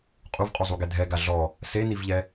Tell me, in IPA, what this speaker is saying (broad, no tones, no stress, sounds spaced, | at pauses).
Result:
qʼ u v qʼ u zˤ u ɡ ɛ dʱ ɛ ɡ a ɮ ɔ | s e n i v ʎ ɛ